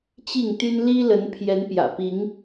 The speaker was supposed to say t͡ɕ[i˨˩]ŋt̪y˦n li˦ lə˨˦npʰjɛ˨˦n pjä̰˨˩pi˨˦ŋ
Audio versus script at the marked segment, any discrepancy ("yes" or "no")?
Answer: yes